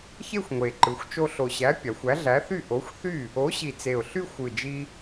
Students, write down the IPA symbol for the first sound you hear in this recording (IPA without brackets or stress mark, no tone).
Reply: ç